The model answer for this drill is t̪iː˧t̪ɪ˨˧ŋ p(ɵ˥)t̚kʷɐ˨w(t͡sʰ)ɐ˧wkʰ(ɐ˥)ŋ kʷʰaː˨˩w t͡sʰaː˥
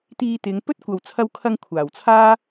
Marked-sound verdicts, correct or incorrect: correct, correct, incorrect

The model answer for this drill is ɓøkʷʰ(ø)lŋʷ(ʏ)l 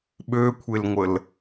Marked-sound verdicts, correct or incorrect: incorrect, incorrect

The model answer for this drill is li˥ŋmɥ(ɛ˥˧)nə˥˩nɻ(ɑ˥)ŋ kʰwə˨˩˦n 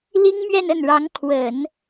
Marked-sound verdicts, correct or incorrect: correct, incorrect

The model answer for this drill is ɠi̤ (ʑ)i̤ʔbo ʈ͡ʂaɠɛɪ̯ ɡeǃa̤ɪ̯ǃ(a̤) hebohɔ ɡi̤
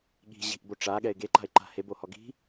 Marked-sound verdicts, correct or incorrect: correct, correct

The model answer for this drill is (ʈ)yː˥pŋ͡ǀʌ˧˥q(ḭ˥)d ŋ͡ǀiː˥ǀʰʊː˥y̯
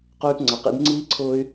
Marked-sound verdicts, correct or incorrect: incorrect, correct

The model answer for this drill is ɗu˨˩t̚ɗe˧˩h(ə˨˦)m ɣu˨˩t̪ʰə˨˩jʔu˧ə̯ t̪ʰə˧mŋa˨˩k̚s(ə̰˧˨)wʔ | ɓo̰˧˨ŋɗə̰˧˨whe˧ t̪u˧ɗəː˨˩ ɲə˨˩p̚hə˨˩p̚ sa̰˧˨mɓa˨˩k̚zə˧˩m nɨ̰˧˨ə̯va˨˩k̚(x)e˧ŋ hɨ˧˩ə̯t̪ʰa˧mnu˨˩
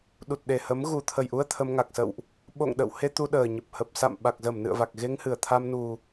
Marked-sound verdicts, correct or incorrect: correct, correct, incorrect

